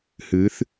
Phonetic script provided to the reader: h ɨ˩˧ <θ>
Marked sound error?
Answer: no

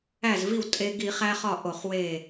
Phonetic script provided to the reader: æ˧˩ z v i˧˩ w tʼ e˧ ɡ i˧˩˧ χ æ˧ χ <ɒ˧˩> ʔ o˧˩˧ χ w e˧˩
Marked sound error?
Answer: no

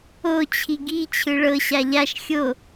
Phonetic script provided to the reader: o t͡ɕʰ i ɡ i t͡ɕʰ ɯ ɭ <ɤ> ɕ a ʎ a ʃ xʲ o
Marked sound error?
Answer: no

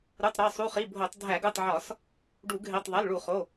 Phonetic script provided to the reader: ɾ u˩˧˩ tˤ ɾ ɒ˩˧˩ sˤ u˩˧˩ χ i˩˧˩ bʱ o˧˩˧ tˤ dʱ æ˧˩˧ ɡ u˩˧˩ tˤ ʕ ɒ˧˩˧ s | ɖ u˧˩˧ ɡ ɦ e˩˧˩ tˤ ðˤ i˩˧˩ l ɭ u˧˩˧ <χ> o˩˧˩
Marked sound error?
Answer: no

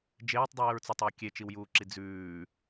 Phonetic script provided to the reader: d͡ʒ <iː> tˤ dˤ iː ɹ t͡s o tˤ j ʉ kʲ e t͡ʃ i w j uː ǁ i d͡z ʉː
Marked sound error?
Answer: yes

